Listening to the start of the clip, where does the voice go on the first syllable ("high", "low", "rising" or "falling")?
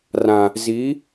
low